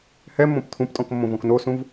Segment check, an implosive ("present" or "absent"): absent